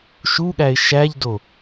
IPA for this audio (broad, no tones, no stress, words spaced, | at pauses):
ʃuɠæɪ̯ ʃæʎdo